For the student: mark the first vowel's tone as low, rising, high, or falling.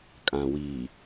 low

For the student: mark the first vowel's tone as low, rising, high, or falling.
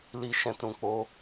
low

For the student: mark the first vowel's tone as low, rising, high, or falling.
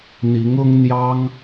rising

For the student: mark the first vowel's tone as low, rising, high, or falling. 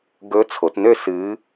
rising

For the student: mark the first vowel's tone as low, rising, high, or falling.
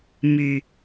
low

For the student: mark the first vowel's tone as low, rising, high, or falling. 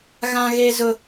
high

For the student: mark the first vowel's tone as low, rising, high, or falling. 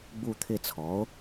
falling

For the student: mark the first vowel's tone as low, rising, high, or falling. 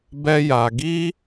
high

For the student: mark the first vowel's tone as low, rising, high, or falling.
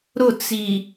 falling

